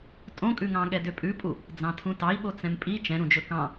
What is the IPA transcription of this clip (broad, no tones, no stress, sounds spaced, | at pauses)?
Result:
tʼ õ kʼ ʉ ŋ ɑ̃ ɠ ɛ d ø pʼ ʉ pʼ u | d͡z ɑ̃ tʰ ũ t ɑ i̯ ɓ o t͡s ɛ̃ m pʼ i t͡ʃ ɛ̃ ɾ ũ d͡ʒ ɵ k ɑ̃